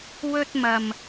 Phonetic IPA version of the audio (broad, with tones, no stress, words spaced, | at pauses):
wɵ˧t̚mɐ˨m